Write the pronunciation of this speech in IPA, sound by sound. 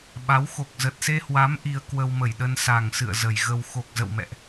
ɓ a˨˦ w x o˨˩ k̚ z ə˨˩ t̚ s e˧ h w a˨˦ m ʔ i˧ ə̯ k w ə˧ w m ə˧˩ j ɗ ə˧ n s a˨˩ ŋ s ɨ̰˧˨ ə̯ z ə˧˩ j ɣ ə˧ w x o˨˩ k̚ z ə̰˧˨ w m ɛ̰˧˨ ʔ

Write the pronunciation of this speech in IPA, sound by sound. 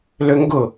l ø ŋ ɡ ʊ

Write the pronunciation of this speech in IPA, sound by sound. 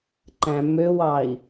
ǃ æ̃ m ø w ɑ i̯

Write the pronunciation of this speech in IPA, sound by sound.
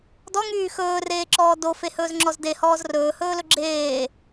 d ɔ ŋ yː x ɵː r eː ǁ ɔː d o f e h ɵː z ŋ͡ǁ ɔ z d e h ɔː z r ɵː h ɵː l ɵ ɡ͡ǁ eː

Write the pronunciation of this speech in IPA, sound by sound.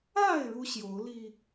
a˥˨ ɪ̯ ɻ u˦ ɕ j o˨˦ ʊ̯ l i˧

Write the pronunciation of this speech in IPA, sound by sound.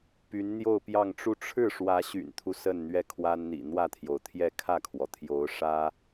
p y˧˥ n n̪ j o˥˧ ʊ̯ p j ɑ˥˧ ŋ ʈ͡ʂ u˥˧ ʈ͡ʂʰ ɻ̩˥˩ ʂ w ä˧˥ ɕ y̰˨˩ n t̪ʰ u˦ s ə˥˧ n n̪ ɥ ɛ˥˩ kʰ w a˥ n n̪ ḭ˨˩ n̪ w ä˥˩ t̪ʰ j o˩ ʊ̯ t̪ʰ j ɛ˥˧ kʰ ä˥˩ kʰ w ɔ˩ t̪ʰ j o˧˥ ʊ̯ ʂ ä˥

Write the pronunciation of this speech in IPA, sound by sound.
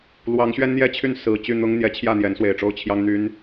l w ɑ˨˦ ŋ ɕ ɥ ɛ˦ n n̪ j ɛ˥˨ t͡ɕʰ y˥˨ n s ɹ̩˨˩ t͡ɕ y˥˨ n̪ ʊ˦ ŋ n̪ j ɛ˨˦ t͡ɕʰ j ä˥˨ n̪ j ɛ˨˦ n s w e˨˩ ɪ̯ ʈ͡ʂ o˦ ʊ̯ t͡ɕʰ j ɑ˦ ŋ n̪ y˦ n

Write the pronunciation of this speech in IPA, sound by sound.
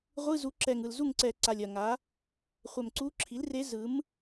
ʁʷ ɯ˧˥˧ z u˩˥ ǁ ɛ˨˩ ŋ ɯ˨˩ l z u˥˨ ŋ ǀ ɛ˨˩ ǀ a˨˩ lʲ ɐ˨˩ ŋ a˩˥ | χʷ ɛ˨˩ m ǀ u˧˥ ǁʰ i˩˥ l r e˧˥ z ɯ˩˥ m

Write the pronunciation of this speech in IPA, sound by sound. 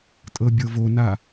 tʼ ɤ bʲ ɤ v o n a

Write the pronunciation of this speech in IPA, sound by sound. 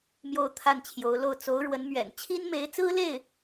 m j o˥˧ ʊ̯ t̪ʰ a˥˩ n t͡ɕʰ j o˧˥ ʊ̯ l o˥˩ ʊ̯ t͡s o˧˥ ʊ̯ ɻ w ə˧˥ n m ɥ ɛ̰˨˩ n t͡ɕʰ i˥ n m e˧˥ ɪ̯ t͡s ɹ̩˥ l e˥˩ ɪ̯

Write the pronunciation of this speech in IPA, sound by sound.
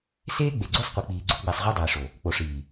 s eː˦ ɡ͡b e˨ ɡ͡ǀ u˦ sˤ qʷ i˨ k͡p iː˨ ɡ͡ǀ o˦ ɡ͡b i˨ sˤ ʁʷ a˦ dˤ iː˨ ʂ o˨ | k͡p o˨ ʂ iː˨

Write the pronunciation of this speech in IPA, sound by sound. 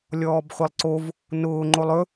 lʲ ɔː b χʷ i lˠ ǀ o v | n ʊː ŋ͡ǃ o lˠ ɵ

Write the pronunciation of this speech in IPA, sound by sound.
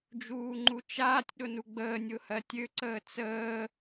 d͡ʒ uː ŋ͡ǃ u t͡ʃ aː tʲ ɗ ʊ n u ɡ͡b əː nʲ ʊ h ɜ tʲ ø ǀ əː t͡s əː

